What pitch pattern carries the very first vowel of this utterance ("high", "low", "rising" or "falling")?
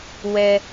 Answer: high